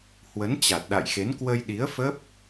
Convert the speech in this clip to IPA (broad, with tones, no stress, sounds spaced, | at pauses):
h w ə˨˦ n t͡ɕ a˨˩ t̚ ɗ a̰˧˨ j x e˨˦ n k w ə˧ j ɗ i˨˦ ə̯ f ə˦˥ p̚